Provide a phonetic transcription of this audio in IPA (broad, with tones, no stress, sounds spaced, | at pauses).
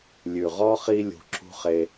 lʲ ʉ˨ ʁ ɔ˦ χ i˦ lʲ ṳ˧ ǁ ṳ˦ χ e˧